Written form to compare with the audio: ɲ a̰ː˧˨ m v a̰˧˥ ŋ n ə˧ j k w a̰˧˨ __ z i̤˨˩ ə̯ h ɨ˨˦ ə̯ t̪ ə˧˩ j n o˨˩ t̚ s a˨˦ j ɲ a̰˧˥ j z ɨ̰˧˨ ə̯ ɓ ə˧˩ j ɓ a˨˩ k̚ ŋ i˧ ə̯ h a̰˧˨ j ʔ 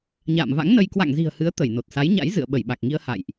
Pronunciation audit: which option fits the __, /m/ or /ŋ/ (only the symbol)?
ŋ